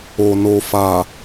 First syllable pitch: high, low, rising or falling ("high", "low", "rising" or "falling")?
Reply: low